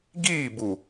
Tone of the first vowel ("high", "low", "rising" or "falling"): falling